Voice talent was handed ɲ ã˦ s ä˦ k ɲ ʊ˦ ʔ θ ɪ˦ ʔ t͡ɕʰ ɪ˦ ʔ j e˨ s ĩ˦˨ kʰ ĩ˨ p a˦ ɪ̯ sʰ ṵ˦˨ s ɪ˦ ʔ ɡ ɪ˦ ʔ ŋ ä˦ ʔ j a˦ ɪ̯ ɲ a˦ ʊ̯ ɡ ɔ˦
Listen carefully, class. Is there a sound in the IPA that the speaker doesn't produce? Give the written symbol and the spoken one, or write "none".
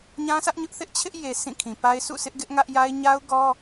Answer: k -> ʔ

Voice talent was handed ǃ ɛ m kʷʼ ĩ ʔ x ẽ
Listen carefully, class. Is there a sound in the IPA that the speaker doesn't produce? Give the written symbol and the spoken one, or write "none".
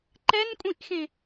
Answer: m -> n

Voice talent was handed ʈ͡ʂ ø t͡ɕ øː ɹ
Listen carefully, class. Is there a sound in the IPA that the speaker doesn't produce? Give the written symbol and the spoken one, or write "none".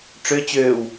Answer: ɹ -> w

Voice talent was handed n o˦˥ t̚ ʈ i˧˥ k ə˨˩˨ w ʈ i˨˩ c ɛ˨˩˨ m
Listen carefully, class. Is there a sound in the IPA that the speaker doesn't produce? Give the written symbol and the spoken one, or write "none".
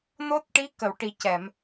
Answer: none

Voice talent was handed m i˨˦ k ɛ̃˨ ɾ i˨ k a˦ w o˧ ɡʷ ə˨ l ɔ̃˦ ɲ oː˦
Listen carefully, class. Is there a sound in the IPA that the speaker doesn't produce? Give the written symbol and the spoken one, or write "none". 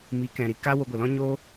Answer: none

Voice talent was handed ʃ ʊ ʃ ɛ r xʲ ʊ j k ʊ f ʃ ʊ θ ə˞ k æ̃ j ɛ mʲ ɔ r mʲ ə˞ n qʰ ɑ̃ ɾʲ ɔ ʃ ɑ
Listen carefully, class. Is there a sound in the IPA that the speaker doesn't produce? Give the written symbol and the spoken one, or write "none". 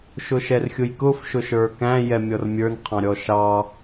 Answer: θ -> ʃ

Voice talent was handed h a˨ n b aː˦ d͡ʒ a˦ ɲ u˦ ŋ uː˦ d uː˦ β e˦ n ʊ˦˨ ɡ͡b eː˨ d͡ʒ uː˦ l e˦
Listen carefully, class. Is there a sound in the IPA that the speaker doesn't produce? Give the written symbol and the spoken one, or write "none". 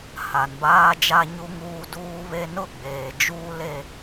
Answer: none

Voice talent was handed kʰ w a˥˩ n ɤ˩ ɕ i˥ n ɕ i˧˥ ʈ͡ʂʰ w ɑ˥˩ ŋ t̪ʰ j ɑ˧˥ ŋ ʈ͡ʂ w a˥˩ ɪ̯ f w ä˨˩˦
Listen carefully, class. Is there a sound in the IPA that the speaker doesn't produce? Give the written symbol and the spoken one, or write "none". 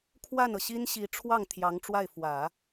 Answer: none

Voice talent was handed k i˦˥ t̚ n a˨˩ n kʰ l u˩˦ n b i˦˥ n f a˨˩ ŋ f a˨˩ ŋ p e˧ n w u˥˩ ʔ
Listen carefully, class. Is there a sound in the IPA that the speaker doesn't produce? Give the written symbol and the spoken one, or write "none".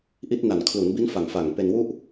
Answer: k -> ʔ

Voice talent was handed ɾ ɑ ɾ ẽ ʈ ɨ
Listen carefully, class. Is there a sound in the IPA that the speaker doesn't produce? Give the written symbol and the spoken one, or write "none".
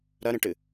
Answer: ɑ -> ɐ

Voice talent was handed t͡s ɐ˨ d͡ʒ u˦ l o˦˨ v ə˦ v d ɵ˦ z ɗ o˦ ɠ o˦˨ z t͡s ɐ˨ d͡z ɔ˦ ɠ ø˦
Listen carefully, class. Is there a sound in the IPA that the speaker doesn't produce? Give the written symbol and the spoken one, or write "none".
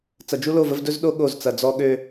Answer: none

